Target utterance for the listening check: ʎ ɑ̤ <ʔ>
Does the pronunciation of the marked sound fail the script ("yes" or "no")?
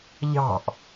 no